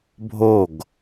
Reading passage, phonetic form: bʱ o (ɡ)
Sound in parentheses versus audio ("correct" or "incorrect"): correct